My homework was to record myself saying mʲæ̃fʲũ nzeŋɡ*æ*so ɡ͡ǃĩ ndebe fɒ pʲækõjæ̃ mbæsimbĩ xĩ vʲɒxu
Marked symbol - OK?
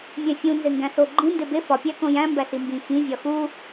no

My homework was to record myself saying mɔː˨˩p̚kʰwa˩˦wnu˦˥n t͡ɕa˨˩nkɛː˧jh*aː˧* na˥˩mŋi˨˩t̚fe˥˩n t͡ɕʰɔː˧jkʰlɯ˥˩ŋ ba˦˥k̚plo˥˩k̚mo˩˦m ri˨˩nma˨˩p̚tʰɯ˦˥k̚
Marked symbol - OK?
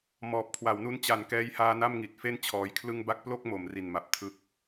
yes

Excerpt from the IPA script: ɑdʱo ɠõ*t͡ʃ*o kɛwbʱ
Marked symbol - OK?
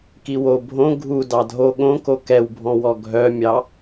no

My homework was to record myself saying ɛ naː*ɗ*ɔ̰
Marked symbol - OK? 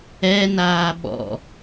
no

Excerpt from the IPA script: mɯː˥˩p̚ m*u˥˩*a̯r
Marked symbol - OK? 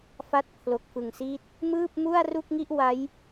yes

